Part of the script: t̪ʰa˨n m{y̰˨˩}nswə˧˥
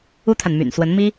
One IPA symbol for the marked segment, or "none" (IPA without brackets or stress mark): y̰˨˩